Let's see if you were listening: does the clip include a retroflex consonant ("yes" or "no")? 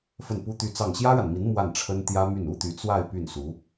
yes